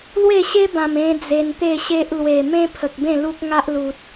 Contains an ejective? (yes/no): no